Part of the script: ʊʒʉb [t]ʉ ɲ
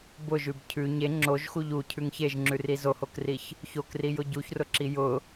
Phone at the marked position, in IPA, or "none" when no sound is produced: cʰ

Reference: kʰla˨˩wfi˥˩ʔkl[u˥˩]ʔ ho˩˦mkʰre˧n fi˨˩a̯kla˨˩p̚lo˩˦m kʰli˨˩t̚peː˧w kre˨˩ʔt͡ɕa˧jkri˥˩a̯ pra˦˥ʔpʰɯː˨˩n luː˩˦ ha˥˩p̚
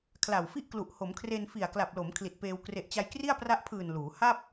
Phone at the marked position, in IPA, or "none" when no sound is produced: u˨˩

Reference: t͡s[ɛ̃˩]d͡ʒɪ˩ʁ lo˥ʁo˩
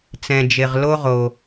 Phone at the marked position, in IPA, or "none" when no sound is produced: ɛ̃˩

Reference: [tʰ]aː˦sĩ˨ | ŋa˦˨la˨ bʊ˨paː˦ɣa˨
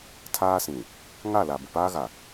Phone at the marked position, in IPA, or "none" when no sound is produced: tʰ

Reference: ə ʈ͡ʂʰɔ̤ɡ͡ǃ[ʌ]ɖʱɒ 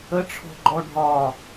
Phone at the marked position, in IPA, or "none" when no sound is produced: ɔ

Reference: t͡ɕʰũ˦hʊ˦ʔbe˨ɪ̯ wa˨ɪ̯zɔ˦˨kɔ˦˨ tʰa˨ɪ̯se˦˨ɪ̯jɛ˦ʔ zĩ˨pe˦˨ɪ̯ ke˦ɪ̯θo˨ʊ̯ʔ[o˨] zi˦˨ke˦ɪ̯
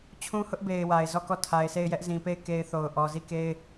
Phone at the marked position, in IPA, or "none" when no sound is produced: ɔ˨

